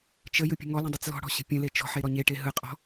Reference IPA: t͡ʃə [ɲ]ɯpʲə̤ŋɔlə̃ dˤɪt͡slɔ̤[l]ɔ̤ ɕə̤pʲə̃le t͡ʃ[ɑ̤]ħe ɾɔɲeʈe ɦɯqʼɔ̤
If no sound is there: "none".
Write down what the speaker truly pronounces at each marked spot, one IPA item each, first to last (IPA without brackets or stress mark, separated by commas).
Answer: j, ɽ, ɔ̤